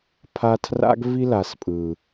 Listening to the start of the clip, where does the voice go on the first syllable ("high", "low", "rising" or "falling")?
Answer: high